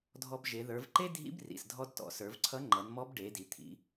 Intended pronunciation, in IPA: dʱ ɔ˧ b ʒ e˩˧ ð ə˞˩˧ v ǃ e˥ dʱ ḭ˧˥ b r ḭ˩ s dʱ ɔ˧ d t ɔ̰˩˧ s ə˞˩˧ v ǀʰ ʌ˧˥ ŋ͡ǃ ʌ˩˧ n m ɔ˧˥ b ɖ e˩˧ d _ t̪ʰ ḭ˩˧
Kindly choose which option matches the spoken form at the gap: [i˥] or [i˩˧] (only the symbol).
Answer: i˩˧